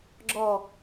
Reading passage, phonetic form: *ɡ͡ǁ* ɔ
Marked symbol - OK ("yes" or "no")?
yes